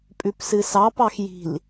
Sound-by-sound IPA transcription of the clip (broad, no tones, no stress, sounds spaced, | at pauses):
pʼ ʉ p s ɨ s ɑ p ɑ x j i̤ l